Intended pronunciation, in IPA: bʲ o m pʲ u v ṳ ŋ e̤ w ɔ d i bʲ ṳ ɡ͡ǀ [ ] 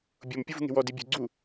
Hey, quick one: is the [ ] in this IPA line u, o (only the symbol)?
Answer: u